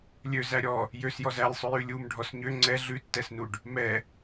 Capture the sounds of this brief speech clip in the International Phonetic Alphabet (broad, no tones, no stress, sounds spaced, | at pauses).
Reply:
lʲ ø z æ ɾʲ ɔ | j ø s j ɔ z æ lʲ sˤ ʉ j ʉ lʲ u m ɖʱ ɔ s ɲ ø ŋ͡ǀ ɛ ɮ ʉ tː ɛ s n u ɖ | m ɛ